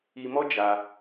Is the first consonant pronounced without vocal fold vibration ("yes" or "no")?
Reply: no